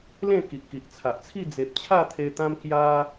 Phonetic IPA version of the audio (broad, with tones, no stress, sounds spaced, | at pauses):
l ẽ˥˧ k i˨ ʔ k i˨ ʔ t͡sʰ a˨ ʔ t͡sʰ i˥˧ d͡z e˨ p̚ t͡ɕʰ a˥˧ t̪ʰ e˧ t̪ ã˦ m k j a˦